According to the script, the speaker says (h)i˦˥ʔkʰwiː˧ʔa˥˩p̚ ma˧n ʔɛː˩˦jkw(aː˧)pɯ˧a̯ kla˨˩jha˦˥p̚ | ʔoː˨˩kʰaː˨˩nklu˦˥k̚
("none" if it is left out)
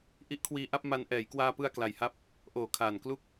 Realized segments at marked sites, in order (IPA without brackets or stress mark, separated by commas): ʔ, aː˧